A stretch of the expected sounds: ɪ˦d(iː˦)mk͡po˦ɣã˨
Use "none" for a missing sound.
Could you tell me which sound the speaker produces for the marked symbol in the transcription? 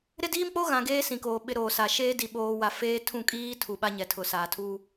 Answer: iː˦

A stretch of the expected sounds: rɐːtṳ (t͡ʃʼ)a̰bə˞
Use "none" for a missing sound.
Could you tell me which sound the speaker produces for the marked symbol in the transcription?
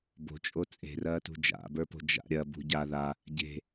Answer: d͡ʒ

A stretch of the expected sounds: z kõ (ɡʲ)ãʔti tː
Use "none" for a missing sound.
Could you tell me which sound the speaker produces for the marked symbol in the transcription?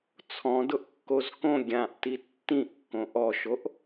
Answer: ɡʲ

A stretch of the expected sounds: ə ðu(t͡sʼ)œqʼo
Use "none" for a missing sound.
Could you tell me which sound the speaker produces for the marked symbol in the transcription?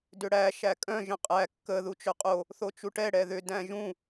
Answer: t͡ʃ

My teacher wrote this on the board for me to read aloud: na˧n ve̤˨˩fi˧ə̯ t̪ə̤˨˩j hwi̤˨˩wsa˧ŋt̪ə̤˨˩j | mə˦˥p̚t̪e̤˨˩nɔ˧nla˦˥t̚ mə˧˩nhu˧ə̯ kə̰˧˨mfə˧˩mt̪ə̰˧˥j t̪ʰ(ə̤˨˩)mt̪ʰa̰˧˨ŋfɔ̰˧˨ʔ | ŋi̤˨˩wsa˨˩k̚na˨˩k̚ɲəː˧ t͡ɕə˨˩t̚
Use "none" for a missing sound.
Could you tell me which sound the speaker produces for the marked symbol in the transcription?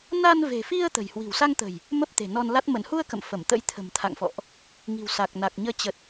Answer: ə̤˨˩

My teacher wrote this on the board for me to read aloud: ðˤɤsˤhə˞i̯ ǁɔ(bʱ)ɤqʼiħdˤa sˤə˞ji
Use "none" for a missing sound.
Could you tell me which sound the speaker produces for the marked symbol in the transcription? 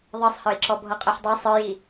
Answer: bʱ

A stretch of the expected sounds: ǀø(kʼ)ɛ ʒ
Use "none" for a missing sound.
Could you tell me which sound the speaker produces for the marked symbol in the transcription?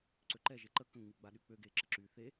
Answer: ǃ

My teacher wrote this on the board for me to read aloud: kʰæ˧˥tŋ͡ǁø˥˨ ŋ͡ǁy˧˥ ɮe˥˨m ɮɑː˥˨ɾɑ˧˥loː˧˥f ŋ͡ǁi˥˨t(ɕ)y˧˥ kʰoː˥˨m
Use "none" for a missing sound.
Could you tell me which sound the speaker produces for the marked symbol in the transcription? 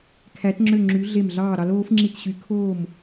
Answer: ɕ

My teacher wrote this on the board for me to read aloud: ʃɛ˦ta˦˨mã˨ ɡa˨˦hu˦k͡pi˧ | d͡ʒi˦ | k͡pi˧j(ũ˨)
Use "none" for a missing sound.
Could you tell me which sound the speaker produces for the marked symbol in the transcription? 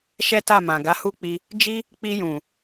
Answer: ũ˨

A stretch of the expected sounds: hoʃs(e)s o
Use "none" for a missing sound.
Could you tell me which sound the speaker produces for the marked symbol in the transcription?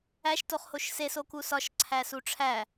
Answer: e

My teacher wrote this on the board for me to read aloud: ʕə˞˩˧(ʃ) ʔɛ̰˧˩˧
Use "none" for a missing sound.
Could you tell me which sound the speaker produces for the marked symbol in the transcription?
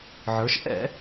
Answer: ʃ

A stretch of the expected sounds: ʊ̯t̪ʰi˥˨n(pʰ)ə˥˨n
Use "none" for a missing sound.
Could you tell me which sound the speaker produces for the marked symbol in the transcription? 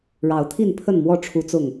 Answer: pʰ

